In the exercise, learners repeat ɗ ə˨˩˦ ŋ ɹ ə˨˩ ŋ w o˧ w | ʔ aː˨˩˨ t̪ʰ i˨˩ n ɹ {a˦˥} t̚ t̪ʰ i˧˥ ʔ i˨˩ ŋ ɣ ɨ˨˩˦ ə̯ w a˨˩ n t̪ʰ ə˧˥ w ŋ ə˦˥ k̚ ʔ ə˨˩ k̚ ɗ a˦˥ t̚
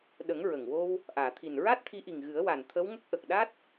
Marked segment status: correct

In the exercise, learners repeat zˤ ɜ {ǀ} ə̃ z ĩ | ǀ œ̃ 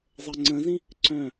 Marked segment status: incorrect: ŋ͡ǀ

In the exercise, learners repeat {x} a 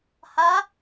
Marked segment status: incorrect: h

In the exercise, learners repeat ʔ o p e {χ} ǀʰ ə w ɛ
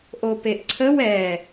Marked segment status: incorrect: ʔ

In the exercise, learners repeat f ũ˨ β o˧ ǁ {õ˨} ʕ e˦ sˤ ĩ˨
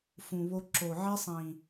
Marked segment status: incorrect: o˨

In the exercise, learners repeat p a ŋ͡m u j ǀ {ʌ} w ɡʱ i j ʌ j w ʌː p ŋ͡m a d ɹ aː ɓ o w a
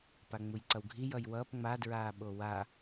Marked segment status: correct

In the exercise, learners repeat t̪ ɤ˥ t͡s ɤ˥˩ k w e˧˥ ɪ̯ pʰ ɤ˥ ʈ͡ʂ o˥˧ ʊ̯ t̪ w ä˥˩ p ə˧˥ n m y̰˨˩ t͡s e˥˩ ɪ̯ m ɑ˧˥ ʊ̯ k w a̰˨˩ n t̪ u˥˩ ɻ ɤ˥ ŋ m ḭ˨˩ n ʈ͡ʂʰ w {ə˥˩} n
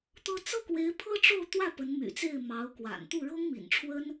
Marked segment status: incorrect: ə˥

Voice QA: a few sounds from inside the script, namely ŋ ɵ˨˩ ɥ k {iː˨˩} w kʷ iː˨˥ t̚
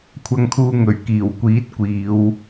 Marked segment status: correct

